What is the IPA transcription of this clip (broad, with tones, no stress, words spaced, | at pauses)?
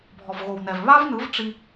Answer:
bʱɔ˨vɣo˨wnɛ˨v βa˦vnɯ˨˦v ʈ͡ʂi˦